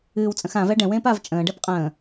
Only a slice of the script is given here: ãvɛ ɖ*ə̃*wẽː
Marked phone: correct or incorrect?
incorrect